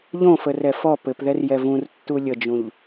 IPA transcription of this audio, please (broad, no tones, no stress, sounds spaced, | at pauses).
ʎ õ f ə r ɛ f ɔ p ɘ p ð ɛ r j ɛ v ũ r tː u lʲ ə d͡ʒ ũ ʎ